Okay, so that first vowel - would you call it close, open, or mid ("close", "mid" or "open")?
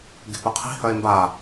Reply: mid